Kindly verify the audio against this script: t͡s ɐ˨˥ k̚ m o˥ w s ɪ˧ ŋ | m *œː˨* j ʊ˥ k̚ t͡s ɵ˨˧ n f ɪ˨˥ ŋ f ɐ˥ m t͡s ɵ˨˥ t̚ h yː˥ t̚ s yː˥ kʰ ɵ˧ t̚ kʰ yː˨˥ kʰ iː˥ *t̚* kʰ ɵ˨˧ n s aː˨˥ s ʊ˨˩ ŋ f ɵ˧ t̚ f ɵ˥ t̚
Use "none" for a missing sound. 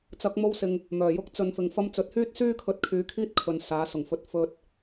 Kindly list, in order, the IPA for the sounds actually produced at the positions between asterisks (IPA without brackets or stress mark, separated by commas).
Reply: œː˨˩, t̚